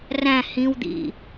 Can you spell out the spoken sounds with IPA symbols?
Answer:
r æ̃ h ĩ w d̪ ḭ

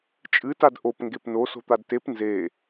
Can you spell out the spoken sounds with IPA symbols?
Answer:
t͡ʃʼ ɨ t a d ʔ o p ŋ ɡ e p n o s o̤ t̪ a d t e p n z e

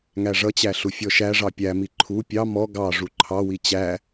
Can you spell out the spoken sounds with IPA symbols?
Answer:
ŋ æ ʐ ʌ t͡ɕ æ ɬ u fʲ ɔ ʃ æ ʐ ɑ pʲ æ m i ǃʰ u pʲ ɑ m ɔ ɡ ɑ ʐ u ǃʰ ɑ w i t͡ɕ æ

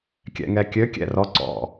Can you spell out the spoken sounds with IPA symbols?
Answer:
kʲ ɛ̰ ŋ ɛ kʲ ø kʲ ɛ̰ r ɔ ǀ ɔ̰

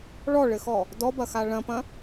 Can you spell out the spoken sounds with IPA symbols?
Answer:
ɭ ɔ ɭ ɘ x ɔ | d ɔ b ɐ x a ɭ ɐ̃ p ɐ̃

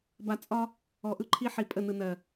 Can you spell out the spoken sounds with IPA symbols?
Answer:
b a˨ t͡sʼ ɒ˦ | ɔ˨ ʔ ɯ˦ ǃʰ i˦ ħ i˨ pʼ ə˦˨ n ɯ˨ n ɜ˨

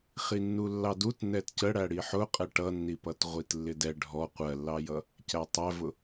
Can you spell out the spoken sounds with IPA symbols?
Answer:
χ i nː u lː ɑ d u t n ɛ t c ə ɽ æ ɽ i ħ ʊ qʼ ɛ ʈ ʌ nː i p ʌ t ʁʷ i t lː ɪ d ɛ ɖʱ ɔ qʷ ɜ lː ɑ j ʌ | c æ tˤ æ v ʊ

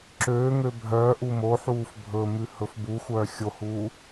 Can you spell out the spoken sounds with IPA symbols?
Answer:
ǁ øː ŋ ø bʱ œː ʔ u m o ħ uː f bʱ ɵ m ʉ h ɵ f b u xʷ œː xʲ o h uː

